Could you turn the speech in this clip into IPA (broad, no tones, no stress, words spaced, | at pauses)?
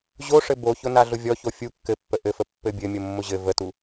ʑoʂɘ boçʊ naɮʊvʲɔ çofʲu kːɘpːə ʔɘfə pːɘbʲɘmʲʊ mːʊʑɘ vətu